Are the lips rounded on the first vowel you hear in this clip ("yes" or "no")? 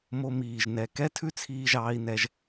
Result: yes